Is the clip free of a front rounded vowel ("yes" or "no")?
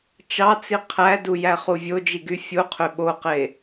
no